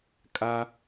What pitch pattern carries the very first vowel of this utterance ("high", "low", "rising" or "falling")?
high